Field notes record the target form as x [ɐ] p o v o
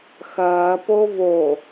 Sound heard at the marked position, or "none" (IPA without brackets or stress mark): ɐː